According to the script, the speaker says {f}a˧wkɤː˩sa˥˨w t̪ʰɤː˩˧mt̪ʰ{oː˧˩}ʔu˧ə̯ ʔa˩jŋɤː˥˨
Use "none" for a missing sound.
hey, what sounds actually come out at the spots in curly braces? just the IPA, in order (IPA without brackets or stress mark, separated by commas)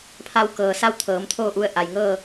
pʰ, oː˥˨